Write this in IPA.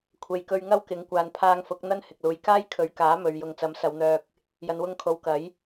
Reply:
kʷʰ e˨ j k ɵ˧ ɥ ŋ ɐ˥ w k ɪ˨˥ ŋ kʷ aː˨ n pʰ aː˧ ŋ f ʊ˨˥ k̚ n̪ ɐ˥ n h ɪ˨ k̚ l uː˨ j k aː˥ j kʰ ɵ˨˥ ɥ k aː˨˥ m ɵ˨ ɥ j ʊ˨ ŋ t͡s ɐ˨˥ m s ɐ˨˧ w n̪ œː˧ k̚ | j ɐ˨ n w ʊ˧ ŋ kʰ o˨˥ w k ɐ˨˥ j

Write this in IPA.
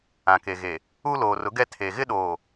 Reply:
ã˨ k e˨ ɣ e˨ | u˦ l oː˨ r ʊ˨˦ ɡ ɛ˦ tʰ e˨ ɣ ɪ˦ ɗ oː˨

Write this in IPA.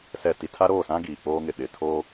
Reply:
s ɛ˨ t i˨ tʰ a˦ ɾ oː˦˨ s ã˦ ɡ iː˨ k͡p oː˦ ŋ ɪ˨ ɗ ɪ˨ tʰ o˦

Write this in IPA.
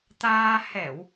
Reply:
t̪ aː˧ h ɛ˧˩˨ w

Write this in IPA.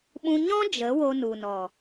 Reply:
ɓ ũ˦ ɲ ɔ̃˦ d͡ʒ ə˨˦ w o˧ n u˨ n ɔ˨

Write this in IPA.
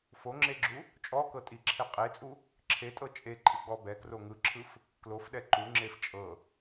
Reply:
f o ŋ͡ǁ e ɡ͡ǁ u | t͡ʃʼ ɔ k ɤ tʼ i ǁʰ e qʼ e t͡sʼ u | ǁʰ e tʼ ɤ t͡ʃʼ e ǃʼ ɯ ɡ͡b ɔ b ɛ k r o ŋ ɯ ǁʰ ɯ f | k l o f ɗ ɛ ǃ u ŋ͡ǁ e f t͡ʃʼ ɤ

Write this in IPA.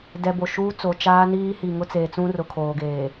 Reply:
d ɛ˨ b o˨ ʃ uː˦ t͡s o˨ t͡ʃ aː˦ n iː˦ h i˨ ŋ ʊ˦ t͡s eː˨ t͡s ũ˦ r ʊ˨ kʰ oː˨ ɡ eː˨

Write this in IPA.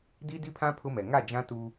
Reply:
d i˦ d i˦ pʰ ã˦ pʰ ʊ˦ m ɛ˨ ŋ a˦˨ d͡ʒ ã˦ t uː˦

